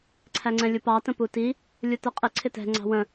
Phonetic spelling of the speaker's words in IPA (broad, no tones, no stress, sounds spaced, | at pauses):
ǀʰ æ ŋ͡ǀ ɛ̃ lʲ u p ɑ t ə̃ p u t i | lʲ u t ə qʼ ɪ ǀʰ ɪ t ɛ̤ ŋ͡ǀ ɑ̤ w ə̃